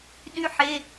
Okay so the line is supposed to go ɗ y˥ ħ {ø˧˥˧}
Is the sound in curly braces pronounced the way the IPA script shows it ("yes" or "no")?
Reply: no